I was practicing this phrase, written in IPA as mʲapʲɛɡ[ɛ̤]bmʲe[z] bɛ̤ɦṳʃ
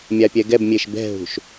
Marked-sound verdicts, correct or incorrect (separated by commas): incorrect, incorrect